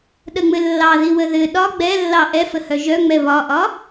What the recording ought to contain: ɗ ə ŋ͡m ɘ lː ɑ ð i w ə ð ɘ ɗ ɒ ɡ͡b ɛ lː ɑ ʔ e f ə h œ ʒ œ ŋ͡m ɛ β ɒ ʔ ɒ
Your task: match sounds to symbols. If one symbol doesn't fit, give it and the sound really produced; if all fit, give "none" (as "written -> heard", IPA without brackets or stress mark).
e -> ɛ